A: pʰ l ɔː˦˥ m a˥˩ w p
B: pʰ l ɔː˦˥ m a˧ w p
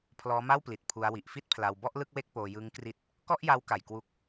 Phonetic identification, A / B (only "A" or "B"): A